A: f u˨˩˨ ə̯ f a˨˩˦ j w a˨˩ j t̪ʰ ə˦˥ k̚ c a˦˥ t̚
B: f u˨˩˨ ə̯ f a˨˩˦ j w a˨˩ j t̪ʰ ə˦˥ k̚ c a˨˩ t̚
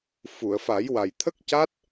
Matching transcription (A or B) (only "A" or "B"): A